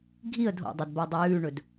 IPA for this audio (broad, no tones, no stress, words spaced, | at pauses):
ɡʱiə̯ dʱo̰dˤɵdbadˤɵ jʉːɳɵd